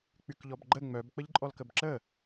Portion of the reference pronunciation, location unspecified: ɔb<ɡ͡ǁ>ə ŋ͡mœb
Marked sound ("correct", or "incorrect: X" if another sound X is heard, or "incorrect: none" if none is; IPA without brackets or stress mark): incorrect: ɡ͡ǃ